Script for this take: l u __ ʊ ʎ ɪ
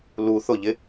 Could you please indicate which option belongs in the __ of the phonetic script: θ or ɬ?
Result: θ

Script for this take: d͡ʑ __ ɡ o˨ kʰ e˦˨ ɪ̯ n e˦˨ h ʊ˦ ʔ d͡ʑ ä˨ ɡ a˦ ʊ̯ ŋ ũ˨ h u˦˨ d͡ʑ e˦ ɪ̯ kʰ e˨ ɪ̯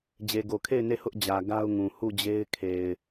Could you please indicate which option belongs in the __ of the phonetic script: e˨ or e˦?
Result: e˨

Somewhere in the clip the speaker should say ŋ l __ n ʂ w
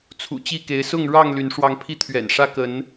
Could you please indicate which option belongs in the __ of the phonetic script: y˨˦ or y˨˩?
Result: y˨˦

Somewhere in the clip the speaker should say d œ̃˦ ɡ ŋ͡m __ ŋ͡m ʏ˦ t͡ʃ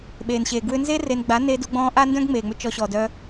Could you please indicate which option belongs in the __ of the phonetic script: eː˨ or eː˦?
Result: eː˨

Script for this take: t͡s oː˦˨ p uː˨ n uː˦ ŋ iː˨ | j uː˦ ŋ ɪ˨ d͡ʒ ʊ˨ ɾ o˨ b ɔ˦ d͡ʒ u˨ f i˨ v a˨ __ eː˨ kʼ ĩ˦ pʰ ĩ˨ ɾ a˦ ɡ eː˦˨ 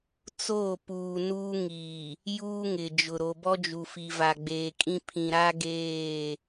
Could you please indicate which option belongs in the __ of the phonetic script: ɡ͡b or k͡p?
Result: ɡ͡b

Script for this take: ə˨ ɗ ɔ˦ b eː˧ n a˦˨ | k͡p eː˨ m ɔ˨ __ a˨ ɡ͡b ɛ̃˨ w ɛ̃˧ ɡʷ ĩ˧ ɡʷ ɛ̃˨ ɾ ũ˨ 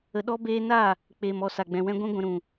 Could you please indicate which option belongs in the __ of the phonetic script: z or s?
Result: s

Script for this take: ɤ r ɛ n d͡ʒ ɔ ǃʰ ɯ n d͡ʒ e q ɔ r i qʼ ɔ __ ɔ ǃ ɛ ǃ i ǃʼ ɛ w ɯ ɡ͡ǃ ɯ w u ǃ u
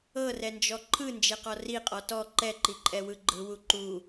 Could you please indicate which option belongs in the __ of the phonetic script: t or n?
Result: t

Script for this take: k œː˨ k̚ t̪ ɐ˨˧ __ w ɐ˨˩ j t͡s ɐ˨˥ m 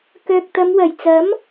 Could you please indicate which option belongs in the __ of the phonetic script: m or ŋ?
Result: m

